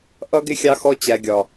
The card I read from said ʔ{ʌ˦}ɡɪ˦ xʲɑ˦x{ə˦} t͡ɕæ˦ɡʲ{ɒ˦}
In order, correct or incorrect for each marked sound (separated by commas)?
correct, incorrect, correct